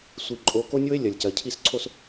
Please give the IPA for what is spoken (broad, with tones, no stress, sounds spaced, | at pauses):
sʷ i˨ ǃʼ o˨˦ k o˦ nʲ o˦ e̯ lʲ ɐ˨ lʲ c ɐ˨ cʰ i˦˨ s ǀʰ o˦ s